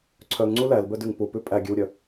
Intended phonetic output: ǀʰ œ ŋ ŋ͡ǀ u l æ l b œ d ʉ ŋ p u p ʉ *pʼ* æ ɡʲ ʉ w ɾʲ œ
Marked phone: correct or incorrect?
correct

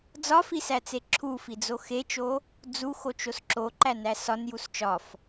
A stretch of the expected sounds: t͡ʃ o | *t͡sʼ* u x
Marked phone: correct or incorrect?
incorrect: d͡z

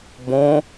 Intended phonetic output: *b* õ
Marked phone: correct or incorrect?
correct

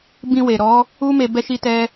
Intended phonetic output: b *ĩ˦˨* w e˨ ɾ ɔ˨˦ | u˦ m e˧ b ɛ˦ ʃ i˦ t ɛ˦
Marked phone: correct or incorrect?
incorrect: ĩ˧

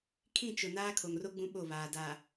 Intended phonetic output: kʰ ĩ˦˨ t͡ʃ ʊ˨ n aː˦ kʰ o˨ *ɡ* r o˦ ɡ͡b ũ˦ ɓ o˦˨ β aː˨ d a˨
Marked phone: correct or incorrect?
incorrect: ŋ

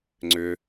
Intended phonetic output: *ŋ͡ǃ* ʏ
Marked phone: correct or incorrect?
incorrect: ŋ͡ǀ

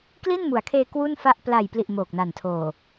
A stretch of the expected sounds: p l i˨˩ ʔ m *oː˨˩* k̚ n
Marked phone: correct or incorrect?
correct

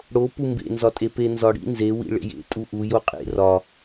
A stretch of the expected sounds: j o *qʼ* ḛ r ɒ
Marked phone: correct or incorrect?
correct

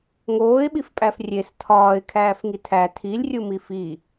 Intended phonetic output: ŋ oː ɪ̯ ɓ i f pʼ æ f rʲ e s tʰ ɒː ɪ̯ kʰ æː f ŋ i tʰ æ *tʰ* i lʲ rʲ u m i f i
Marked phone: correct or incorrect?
correct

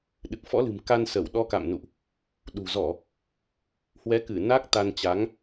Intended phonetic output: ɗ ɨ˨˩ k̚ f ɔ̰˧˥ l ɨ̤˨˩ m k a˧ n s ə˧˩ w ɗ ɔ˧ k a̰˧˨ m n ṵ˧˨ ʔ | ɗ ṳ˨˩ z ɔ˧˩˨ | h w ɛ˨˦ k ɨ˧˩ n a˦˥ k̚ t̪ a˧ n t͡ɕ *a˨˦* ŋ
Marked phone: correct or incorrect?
correct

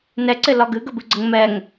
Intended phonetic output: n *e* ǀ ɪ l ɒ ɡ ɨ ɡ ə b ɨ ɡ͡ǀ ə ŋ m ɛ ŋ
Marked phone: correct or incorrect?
incorrect: ɛ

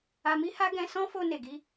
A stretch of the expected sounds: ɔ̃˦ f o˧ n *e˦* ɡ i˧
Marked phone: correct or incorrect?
incorrect: e˨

